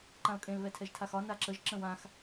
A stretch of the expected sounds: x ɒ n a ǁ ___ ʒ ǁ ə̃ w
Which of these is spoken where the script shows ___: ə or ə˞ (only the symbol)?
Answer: ə